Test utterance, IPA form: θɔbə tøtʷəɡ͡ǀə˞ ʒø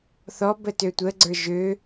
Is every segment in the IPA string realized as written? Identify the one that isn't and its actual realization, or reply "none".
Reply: none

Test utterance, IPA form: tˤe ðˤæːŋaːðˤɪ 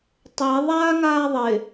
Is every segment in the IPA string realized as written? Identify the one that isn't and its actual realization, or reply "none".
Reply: æː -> aː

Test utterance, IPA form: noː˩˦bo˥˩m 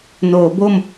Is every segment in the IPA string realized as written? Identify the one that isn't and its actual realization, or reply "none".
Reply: none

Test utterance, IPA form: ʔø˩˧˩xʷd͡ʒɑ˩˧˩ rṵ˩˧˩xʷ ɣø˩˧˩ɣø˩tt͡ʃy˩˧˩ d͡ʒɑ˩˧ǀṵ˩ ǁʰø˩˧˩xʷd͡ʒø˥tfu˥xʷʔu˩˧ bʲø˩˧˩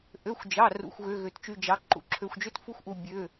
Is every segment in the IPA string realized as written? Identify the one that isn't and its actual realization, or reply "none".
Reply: ǀ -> ǃ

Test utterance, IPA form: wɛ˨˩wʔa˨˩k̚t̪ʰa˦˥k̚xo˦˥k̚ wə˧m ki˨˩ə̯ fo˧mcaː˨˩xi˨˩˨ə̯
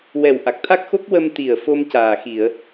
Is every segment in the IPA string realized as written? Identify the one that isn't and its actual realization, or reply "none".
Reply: k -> t̪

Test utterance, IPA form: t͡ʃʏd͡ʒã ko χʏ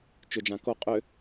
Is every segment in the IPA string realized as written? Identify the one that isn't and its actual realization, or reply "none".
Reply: χ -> qʼ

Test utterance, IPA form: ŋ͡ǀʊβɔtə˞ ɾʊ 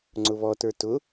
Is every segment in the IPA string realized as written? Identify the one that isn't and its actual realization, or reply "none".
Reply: ɾ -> t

